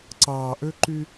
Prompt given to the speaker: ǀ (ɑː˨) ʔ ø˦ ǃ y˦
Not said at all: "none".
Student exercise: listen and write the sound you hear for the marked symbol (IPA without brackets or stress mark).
ɑː˨